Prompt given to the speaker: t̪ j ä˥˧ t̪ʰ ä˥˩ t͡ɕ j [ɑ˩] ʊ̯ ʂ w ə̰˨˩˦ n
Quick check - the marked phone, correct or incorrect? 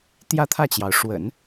correct